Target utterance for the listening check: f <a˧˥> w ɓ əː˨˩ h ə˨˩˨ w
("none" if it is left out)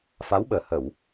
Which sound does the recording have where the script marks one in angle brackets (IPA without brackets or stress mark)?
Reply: a˧˥